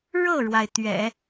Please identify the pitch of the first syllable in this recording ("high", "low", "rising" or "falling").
falling